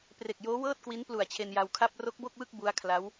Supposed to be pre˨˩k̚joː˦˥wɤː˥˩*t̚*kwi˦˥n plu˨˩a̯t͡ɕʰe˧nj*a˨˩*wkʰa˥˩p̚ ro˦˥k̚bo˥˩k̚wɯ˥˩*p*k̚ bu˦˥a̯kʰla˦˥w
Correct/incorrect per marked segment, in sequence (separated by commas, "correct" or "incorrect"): correct, incorrect, incorrect